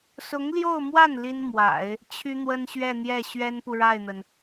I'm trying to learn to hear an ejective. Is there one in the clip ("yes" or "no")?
no